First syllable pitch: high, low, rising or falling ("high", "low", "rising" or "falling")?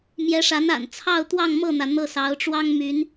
rising